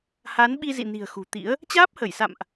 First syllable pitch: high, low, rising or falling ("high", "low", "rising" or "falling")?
rising